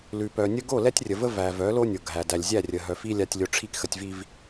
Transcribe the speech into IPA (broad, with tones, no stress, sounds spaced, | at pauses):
l ʉ˨ p œ˨ nʲ ə˦ ɡ o˦˨ l ɛ˦ tʲ rʲ ə˨ v ə˦ v æ˨ v œ˨˦ l o˦ nʲ o˨ ɡʱ æ˨ d æ˨ lʲ zʲ æ˦˨ rʲ ə˨ ɦ œ˨ f i˦ lʲ a˦ tʲ lʲ o˦ ʈ͡ʂʰ i˦ k x ə˨ tʲ v i˨ v